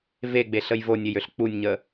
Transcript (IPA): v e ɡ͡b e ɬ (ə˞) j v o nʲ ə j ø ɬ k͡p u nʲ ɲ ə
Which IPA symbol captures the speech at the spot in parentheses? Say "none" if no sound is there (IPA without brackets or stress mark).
ə